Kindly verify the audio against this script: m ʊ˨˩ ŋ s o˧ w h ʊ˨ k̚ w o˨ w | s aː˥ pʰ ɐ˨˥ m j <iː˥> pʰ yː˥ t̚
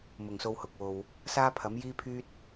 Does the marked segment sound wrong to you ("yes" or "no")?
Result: no